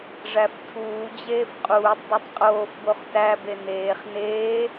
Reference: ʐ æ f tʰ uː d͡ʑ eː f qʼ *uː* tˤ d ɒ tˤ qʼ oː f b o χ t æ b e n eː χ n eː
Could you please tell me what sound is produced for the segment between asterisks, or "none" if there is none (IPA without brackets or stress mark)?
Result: uː